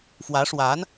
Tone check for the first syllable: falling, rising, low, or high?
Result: rising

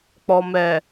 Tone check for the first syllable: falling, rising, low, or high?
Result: low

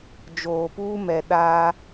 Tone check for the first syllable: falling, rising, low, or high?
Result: low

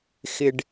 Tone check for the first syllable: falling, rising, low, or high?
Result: low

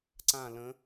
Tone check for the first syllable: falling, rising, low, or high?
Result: falling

